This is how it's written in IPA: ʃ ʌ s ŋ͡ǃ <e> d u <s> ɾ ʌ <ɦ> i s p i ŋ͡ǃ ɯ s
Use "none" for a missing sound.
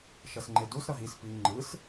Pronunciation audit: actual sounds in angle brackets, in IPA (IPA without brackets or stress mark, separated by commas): e, s, ɦ